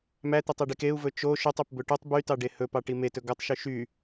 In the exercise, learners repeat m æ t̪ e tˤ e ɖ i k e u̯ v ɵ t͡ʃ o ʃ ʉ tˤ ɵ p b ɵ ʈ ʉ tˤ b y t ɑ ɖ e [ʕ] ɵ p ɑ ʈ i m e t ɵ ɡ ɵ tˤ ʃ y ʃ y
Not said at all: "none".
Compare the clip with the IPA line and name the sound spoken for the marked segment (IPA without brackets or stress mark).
h